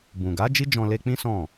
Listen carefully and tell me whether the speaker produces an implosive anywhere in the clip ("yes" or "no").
no